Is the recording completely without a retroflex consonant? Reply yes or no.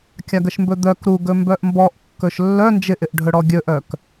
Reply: no